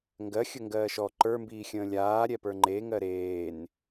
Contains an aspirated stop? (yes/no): no